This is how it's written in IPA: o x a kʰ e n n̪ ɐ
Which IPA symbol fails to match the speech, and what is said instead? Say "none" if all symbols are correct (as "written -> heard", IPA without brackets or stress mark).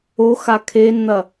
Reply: none